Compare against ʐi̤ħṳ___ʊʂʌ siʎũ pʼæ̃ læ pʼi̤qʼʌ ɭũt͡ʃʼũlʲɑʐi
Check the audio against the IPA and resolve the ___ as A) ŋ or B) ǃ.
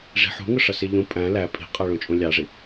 A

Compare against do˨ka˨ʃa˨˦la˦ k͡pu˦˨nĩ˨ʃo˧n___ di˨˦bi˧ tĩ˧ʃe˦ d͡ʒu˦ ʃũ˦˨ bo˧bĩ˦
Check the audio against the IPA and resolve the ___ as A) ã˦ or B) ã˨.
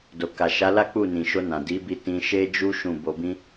B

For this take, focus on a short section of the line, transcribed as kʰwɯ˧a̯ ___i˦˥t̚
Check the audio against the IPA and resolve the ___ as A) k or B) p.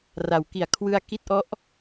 A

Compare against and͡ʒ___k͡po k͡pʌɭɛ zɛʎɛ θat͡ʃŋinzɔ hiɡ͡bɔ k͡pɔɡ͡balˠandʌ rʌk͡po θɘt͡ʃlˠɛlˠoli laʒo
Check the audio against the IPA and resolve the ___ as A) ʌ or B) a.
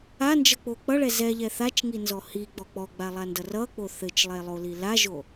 A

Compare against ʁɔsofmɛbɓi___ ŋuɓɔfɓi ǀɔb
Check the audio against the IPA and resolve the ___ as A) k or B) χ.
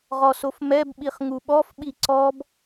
B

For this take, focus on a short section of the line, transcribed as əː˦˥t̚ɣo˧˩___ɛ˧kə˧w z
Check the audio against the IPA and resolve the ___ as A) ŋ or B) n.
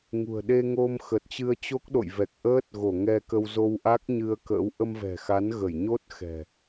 A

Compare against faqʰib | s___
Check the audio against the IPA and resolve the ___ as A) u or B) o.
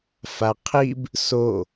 B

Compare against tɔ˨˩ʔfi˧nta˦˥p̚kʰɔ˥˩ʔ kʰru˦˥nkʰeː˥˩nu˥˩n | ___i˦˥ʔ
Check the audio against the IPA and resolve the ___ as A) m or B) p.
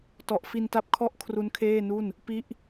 B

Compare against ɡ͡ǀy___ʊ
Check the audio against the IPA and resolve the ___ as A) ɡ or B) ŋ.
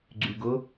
A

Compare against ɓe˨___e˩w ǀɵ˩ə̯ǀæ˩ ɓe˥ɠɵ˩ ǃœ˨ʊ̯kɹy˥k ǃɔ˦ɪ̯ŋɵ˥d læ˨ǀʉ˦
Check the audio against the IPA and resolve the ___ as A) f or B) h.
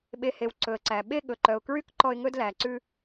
B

